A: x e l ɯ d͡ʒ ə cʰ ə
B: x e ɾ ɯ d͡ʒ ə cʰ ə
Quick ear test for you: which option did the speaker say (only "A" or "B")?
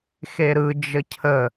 B